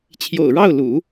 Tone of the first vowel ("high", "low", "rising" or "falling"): low